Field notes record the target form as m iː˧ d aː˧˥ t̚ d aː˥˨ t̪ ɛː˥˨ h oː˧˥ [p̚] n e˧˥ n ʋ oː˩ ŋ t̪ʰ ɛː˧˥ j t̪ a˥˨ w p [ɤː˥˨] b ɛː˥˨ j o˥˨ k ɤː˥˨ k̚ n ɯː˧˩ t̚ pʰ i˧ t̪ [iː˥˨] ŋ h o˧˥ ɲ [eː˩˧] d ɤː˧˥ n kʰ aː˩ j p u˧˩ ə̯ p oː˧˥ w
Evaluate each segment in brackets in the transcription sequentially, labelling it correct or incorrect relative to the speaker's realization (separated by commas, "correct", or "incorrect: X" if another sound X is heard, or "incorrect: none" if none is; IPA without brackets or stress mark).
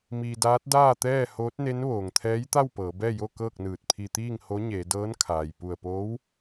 incorrect: t̚, incorrect: ɤː˩˧, correct, correct